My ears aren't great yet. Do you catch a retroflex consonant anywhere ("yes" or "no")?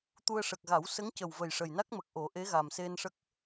yes